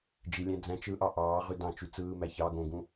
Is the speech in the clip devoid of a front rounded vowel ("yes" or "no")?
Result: no